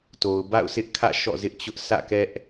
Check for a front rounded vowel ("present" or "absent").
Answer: absent